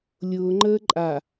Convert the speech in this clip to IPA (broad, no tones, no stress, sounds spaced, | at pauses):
lʲ ʊː ŋ͡ǃ əː ǃʼ a